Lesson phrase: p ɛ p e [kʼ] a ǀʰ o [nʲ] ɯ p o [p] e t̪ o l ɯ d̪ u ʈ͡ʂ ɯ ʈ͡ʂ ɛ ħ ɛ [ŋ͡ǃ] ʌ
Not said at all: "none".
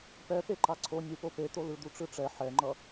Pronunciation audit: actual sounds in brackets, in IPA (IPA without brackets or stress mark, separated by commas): ǃ, nʲ, p, ŋ͡ǃ